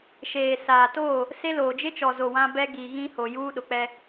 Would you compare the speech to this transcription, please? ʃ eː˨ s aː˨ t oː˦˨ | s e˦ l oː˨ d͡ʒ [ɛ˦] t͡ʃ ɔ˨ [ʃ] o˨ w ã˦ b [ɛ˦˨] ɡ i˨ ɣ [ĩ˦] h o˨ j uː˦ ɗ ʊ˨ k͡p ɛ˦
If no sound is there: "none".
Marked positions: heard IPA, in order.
ɪ˦, z, ɛ˦, ĩ˦

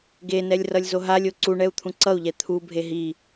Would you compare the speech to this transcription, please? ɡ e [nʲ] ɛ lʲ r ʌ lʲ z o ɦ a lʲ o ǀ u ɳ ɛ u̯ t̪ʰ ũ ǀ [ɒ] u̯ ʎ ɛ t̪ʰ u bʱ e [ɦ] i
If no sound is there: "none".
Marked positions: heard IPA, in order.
n, ʌ, ɦ

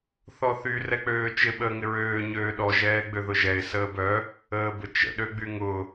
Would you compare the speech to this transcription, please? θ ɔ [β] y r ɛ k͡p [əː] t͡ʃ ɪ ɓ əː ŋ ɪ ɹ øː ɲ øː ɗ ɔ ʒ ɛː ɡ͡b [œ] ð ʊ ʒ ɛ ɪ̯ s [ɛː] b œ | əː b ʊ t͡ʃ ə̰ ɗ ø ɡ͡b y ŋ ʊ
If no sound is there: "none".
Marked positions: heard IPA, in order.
θ, øː, ø, əː

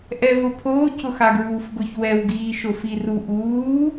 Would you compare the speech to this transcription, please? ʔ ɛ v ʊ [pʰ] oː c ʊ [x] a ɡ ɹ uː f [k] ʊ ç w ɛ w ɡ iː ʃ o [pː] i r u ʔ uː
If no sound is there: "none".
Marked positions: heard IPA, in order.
pʰ, x, ɡ, f

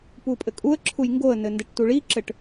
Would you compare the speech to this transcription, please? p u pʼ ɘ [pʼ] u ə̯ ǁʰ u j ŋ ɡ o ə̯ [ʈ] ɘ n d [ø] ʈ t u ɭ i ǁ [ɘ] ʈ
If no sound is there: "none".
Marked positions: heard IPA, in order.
kʼ, n, ɘ, ɘ

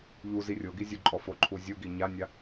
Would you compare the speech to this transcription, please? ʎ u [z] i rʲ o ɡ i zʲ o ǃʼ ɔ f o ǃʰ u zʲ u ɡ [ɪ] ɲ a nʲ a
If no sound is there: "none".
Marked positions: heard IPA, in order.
z, i

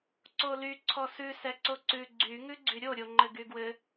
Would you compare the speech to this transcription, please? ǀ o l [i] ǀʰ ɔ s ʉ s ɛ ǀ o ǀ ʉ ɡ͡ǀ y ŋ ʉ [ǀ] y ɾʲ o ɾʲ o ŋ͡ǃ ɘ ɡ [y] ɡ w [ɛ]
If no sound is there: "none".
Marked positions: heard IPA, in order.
y, ɡ͡ǀ, y, ɘ

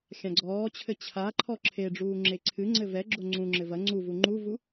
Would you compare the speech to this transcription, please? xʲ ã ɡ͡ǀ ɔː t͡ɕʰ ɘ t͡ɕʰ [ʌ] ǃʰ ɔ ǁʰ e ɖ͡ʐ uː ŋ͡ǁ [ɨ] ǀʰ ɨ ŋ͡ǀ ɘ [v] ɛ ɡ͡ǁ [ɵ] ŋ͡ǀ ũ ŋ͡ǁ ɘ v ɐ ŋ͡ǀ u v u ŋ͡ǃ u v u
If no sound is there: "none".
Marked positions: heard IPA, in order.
a, e, v, o

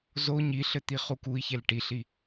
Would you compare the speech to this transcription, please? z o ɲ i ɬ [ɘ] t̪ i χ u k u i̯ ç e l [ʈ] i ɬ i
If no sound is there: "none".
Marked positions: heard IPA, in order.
ɘ, ʈ

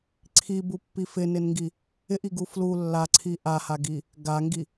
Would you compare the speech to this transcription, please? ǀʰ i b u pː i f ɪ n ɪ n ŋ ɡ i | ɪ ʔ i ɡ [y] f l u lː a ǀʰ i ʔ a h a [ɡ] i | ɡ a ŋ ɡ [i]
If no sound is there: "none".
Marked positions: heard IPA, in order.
u, ɡ, i

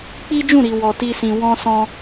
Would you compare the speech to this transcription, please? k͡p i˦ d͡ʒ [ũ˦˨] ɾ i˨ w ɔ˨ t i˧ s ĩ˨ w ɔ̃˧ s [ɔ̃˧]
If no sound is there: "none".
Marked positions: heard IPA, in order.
ũ˦˨, ɔ̃˧

